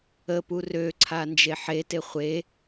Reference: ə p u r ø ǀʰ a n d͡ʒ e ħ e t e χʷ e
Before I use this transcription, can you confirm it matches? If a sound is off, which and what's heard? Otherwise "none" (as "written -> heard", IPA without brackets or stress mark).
none